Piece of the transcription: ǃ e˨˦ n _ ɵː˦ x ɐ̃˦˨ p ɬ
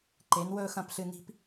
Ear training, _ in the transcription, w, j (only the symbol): w